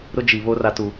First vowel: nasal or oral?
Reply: oral